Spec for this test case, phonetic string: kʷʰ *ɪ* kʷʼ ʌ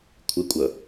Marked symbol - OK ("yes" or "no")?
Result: yes